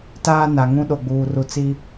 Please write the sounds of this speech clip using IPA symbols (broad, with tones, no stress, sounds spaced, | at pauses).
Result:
t aː˦ n a˨ ŋ ũ˦ ɗ o˨ ɡ͡b uː˨ r u˨ t͡s i˦